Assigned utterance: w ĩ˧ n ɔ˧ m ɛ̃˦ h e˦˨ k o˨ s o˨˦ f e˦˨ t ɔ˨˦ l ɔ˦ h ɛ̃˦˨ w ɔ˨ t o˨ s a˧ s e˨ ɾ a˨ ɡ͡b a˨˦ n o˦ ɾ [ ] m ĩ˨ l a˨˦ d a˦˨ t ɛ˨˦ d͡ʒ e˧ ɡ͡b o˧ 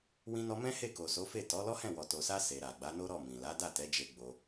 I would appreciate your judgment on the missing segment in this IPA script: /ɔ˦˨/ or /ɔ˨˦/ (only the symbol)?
ɔ˦˨